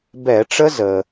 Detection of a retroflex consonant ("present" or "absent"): present